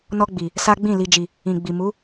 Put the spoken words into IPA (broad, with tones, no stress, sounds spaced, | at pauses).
n ɔ˧ ɡ͡b i˨ | s a˦ ɡ͡b ĩ˦˨ l i˨ d͡ʒ i˨ | ĩ˨ ɡ͡b i˨ m u˨˦